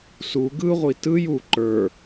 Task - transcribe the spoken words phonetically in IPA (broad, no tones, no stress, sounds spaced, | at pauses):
s u ɡ ɯ ʁʷ i t ɯ j u ǃ ə˞